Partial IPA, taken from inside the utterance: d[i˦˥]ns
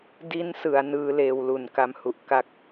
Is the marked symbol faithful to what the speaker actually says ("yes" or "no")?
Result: yes